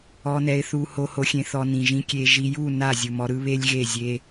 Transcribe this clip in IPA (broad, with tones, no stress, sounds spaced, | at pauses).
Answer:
ɔ˧ n ɛ˧ ɪ̯ θ u˧ h o˧ h o˧ xʲ ẽ˧ θ ɔ˧ n ĩ˨ ʒ ĩ˦ kʲ e˧ ʒ i˧ j u˦˨ n a˦˨ zʲ u˨ m ɔ˧ ɾ ɯ˦ β e˦ lʲ ɣ e˦˨ zʲ e˦